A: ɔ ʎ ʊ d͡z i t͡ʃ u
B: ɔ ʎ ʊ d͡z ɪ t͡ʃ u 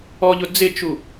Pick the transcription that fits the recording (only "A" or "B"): B